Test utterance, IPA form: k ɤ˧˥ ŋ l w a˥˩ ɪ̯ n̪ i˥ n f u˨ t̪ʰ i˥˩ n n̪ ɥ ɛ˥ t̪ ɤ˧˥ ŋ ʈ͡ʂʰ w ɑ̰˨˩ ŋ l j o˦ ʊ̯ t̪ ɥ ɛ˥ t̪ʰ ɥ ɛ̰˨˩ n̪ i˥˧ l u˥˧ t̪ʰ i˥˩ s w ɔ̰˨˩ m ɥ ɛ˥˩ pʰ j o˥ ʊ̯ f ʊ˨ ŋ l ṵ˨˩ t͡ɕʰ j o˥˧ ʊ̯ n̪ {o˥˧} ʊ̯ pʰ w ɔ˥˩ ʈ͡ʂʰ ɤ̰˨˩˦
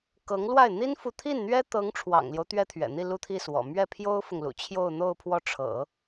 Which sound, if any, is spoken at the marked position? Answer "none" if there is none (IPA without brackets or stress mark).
o˥˧